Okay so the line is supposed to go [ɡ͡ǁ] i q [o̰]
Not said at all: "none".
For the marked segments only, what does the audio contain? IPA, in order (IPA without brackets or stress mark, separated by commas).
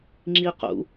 ŋ͡ǁ, ṵ